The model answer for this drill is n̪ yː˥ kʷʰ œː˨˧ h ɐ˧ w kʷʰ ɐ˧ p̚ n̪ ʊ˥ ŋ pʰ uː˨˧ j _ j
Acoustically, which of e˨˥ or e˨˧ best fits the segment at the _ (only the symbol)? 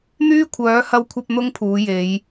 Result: e˨˧